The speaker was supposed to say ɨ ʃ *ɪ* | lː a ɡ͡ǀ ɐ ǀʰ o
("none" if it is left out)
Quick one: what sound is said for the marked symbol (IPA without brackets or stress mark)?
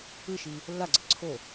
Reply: i